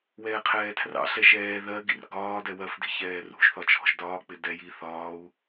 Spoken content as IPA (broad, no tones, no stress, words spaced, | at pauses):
wɛːqʰɛːtʰrɑ̰ɬɛ ʃɛː ðɜɡḭr ɡɒː dɛwɜfdi̤ çɛːrṳʒθɒ t͡ʃʰɔ̤ʒdɒːk͡pɪ dɛ ji θɒːu̯